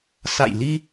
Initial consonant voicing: voiceless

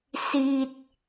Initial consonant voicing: voiceless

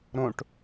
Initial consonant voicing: voiced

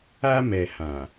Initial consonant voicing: voiced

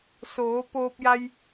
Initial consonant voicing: voiceless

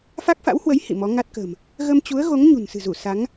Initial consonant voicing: voiceless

